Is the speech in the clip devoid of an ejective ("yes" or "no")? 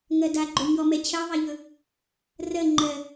yes